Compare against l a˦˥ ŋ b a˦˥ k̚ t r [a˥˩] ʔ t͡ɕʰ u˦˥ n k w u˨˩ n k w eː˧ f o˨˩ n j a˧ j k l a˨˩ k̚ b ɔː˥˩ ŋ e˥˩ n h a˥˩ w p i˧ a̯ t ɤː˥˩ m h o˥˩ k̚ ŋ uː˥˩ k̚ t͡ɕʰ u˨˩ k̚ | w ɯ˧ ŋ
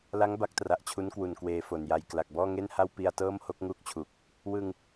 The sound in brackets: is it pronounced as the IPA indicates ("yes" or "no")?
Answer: no